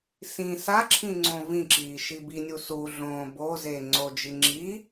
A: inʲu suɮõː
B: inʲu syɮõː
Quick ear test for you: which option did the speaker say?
A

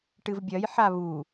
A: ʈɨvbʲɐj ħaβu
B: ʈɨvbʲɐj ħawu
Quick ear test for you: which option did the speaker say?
A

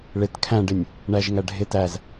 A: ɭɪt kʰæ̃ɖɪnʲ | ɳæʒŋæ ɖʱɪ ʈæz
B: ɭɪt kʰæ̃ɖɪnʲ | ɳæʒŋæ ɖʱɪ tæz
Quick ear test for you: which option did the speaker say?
B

